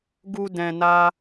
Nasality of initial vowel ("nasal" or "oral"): oral